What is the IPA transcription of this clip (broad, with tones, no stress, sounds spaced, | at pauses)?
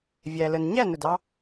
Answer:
vʲ æ˧ l ə˧ n ɲ æ˦˨ n ʊ˨ d ɑ˧